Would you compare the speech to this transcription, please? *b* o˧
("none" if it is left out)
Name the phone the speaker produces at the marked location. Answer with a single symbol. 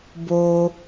b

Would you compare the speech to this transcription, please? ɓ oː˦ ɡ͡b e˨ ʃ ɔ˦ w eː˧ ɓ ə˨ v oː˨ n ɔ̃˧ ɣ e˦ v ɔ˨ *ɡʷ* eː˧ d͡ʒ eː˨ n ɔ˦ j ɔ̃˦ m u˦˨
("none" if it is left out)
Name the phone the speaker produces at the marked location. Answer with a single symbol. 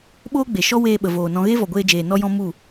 ɡʷ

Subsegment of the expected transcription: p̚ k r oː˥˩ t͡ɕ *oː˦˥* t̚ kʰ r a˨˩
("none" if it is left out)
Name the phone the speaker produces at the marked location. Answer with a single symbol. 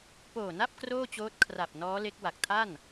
oː˦˥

